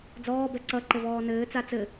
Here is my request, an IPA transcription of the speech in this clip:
d͡z ɔː b ɛ ǀ ʌ ǃ ɘ v ɔː n ɘː t͡s a t͡s ɘ

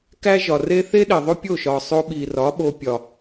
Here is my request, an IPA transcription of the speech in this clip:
k æ˦ ʒ ɒ˨ r e˦ θ e˦ ɗ e˨ ðˤ o˦ pʲ o˦˨ ʃ ɒ˨ sˤ o˧ ɓ i˨ r ɒ˨˦ ɓ o˧ pʲ ɒ˨

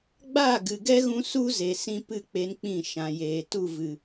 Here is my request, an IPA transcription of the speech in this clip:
ɡ͡b aː˦˨ ɡ ɨ˨ ɡ ɛ˦ ɣ ũ˧ s u˦ z e˨ s ĩ˧ p ɨ˦˨ k͡p e˧ n k͡p ĩ˦˨ ʃ ã˨ j eː˨ t u˦˨ v ɨ˨

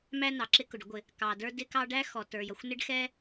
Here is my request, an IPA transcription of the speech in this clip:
m æ˥ n ɑ˩ ǁ ɪ˥ k ʊ˩ ɖ ʊ˥ ɡʷ ɪ˩ | k ɑ˩ d ə˞˥ d ɪ˥ k ɑ˥ ɖ æ˥ x ɔ˩ t ə˞˩ j ʌ˩ xʷ n ɪ˥ ɖ x ɛ˥

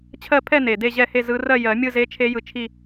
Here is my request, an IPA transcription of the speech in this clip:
t͡ɕʰ ɜ˥˧ pʰ ɛ˥˧ n e˨˩ d e˥˧ ʑ ɛ˥˧ h e˥˧ z ɯ˦˥ r ɜ˥˧ j ɜ˨˩˦ mʲ ɯ˥˧ z e˦˥ t͡ʃʰ e˦˥ j ɯ˧ t͡ʃʰ i˥˧

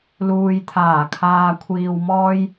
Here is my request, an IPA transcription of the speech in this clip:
l uː˨ j t̪ʰ aː˨˩ kʰ aː˨ kʷʰ iː˨ w m ɔː˧ j

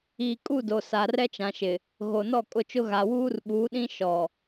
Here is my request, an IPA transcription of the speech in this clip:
iː˨ kʼ u˦˨ d o˨ s a˨ r ɛ˦ t͡ʃ ã˨ ʃ ɪ˨ | ɣ o˨ n ɔ˦˨ kʼ ʊ˦˨ t͡ʃ ʊ˦ ɣ a˨ w uː˦ r ɓ uː˨˦ ɗ ĩ˦ ʃ ɔ˨

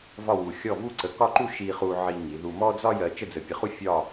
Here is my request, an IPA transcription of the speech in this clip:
v ɒ˥˧ w u˧ xʲ ɔ˥˧ v u˥ ǀ ə˧ k ɒ˥˧ ǃ u˥˧ ʃ i˧ χ u˧ ʕ i˧ ŋ i˩˧ ð u˧ m ɔ˥ d͡z ɒ˥ j ɜ˧ t͡ʃ ə˥˧ d͡z ə˧ pʲ ə˧ χ u˥ fʲ ɒ˥˧

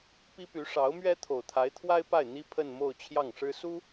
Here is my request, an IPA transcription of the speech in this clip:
p i˥ p y˧˥ ʂ ɑ˧˥ ʊ̯ m ɥ ɛ˥ t̪ʰ o˨˩ ʊ̯ t̪ʰ a˧˥ ɪ̯ t̪ʰ w a˥ ɪ̯ p a˥˩ ɪ̯ n̪ i˥ pʰ ə˥˧ n m o˥˧ ʊ̯ t͡ɕʰ j ɑ˥˩ ŋ ʂ ɻ̩˥ s u˥

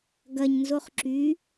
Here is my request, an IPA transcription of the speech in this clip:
ɡ ɐ ɲ n z o χ ǁ y

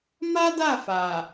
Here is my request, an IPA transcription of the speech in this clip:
m a˦ d a˦˨ f a˨

